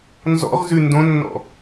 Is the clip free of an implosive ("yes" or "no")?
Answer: yes